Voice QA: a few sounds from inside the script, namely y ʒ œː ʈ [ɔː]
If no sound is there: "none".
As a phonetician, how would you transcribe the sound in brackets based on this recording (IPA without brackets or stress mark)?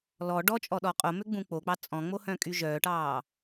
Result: ɑː